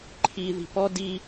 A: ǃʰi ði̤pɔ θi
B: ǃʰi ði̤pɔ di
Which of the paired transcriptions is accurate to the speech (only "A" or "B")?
B